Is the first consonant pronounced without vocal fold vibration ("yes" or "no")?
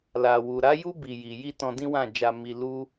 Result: no